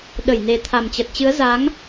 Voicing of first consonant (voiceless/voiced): voiced